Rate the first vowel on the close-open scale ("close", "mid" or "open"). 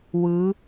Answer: close